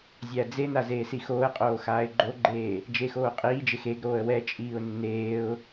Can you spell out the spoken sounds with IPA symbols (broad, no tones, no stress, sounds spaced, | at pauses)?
zʲ æ d͡z e n a z eː s i x oː ə̯ qʼ oː x aː ɪ̯ ɡ͡ǃ o ɡ͡ǃ eː | d͡ʒ e x oː qʼ iː d͡ʒ e x e ɡ ɾ oː ə̯ w ɛ t͡ʃʼ iː ʊ̯ nː eː ʊ̯